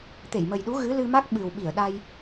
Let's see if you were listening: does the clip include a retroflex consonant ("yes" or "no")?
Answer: no